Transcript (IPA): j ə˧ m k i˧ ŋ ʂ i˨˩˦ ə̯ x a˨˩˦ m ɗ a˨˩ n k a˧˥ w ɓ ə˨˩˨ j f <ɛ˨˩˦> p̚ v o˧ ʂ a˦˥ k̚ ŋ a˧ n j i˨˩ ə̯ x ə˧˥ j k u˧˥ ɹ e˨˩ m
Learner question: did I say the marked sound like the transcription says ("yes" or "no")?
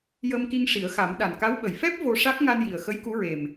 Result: no